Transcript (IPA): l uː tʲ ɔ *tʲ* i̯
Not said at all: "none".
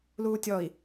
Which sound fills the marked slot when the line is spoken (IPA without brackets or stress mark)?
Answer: none